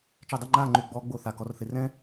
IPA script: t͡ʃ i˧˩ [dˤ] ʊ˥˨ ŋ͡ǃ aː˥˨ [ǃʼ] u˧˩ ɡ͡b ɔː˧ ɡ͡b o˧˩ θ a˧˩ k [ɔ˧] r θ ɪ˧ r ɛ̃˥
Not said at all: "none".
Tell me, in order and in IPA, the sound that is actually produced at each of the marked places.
dˤ, ŋ͡ǃ, ɔ˧

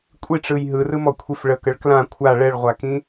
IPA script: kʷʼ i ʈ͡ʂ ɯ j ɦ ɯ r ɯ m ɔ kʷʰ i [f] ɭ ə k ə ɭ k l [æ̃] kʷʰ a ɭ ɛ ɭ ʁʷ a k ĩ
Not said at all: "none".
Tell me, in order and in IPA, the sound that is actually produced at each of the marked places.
f, ã

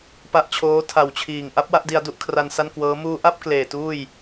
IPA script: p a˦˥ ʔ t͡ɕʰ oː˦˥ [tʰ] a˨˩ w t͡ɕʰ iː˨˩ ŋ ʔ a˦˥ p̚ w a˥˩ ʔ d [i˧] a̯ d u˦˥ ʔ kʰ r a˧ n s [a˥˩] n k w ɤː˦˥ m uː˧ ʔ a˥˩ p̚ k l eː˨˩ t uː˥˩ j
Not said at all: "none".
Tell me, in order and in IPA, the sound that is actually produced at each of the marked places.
tʰ, i˧, a˥˩

